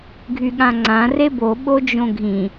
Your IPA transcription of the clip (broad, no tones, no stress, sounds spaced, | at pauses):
ɡʱ y ɠ ã ŋ͡ǀ ã r e b o ɓ o d͡ʒ õ ɡʱ ĩ